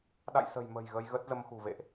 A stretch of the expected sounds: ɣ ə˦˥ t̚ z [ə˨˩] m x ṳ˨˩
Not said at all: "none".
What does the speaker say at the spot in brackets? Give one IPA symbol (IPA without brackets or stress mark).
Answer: ə˧